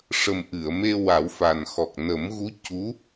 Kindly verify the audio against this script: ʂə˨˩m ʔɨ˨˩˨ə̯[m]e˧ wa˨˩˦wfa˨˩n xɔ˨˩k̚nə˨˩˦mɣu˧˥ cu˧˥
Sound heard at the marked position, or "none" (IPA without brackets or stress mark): m